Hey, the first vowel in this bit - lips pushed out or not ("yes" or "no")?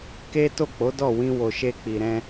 no